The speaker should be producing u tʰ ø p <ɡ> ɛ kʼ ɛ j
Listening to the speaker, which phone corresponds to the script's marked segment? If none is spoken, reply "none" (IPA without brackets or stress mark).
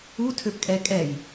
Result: kʼ